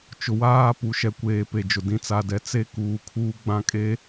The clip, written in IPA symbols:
t͡ʃ ʊ˨ w aː˦ p u˨ ʃ ɛ˨ kʷ eː˨ p e˨ d͡ʒ ʊ˨ d ĩ˨ t͡s a˨ d ɛ˨ t͡s e˦ k uː˨ kʰ uː˦ ɡ͡b ã˦ kʼ e˦

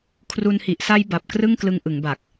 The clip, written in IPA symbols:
kʰ r u˧ n h i˨˩ ʔ s a˦˥ j b a˨˩ p̚ k r ɯ˥˩ ŋ k l ɯ˧ ŋ ʔ ɯ˩˦ ŋ b a˨˩ k̚

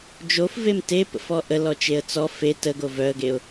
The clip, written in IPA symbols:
d͡ʒ o f v e m t e p ə̰ f ɔ ʔ ə l ɔ t͡ʃ e ə̯ t͡s ɔ f e t ə ɡ o v œ ə̯ ɡ e ʊ̯

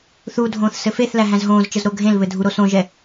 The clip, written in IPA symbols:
θ u dʱ õː θ s ɘ f e θ l æ ɦ æ̃ z ɦ õː z t͡ʃ ə z ɾ o ɡʱ ẽ l β ɘ dʱ u ɾ o s õ ʒ ɛ

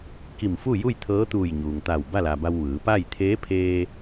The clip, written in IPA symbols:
k i˧˩ m f u˥˨ j u˥˨ j t̪ʰ ɤː˧˥ t̪ uː˧˩ j ɲ uː˩ ŋ t̪ a˧˩ w b a˥˨ l a˩ b a˧ w ʋ ɯː˩˧ p a˥˨ j t̪ʰ eː˧˥ pʰ eː˧

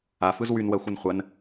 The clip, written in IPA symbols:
a f ɯ z w y n w ɜ xʷ ɯ n χʷ ɜ n

